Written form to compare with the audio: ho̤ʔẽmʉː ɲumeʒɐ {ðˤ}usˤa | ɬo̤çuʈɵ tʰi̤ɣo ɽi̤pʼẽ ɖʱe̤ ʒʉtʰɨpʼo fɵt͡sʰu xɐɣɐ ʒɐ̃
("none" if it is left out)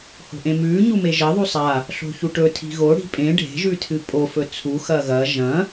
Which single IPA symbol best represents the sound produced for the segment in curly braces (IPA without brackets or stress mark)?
ðˤ